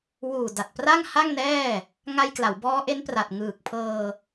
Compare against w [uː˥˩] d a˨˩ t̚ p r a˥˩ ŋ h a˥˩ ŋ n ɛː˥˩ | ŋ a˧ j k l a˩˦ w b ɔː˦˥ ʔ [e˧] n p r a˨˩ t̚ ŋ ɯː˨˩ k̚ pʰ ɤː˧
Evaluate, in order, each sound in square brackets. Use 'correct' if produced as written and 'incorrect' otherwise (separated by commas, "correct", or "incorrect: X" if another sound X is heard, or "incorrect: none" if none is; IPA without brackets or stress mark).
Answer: incorrect: uː˨˩, incorrect: e˦˥